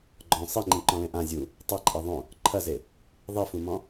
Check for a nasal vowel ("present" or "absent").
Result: present